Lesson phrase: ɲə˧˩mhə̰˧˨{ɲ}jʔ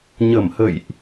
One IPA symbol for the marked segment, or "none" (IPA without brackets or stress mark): none